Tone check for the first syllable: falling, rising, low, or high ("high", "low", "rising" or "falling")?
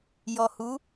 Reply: low